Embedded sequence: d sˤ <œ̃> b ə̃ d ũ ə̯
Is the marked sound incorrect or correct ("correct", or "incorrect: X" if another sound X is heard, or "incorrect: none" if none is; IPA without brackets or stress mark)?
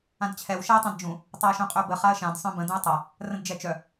correct